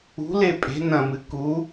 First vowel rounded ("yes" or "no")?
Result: yes